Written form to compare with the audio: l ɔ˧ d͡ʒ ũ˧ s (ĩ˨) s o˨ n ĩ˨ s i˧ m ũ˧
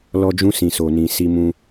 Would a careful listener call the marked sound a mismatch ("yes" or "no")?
no